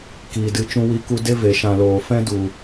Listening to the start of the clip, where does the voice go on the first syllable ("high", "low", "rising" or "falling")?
low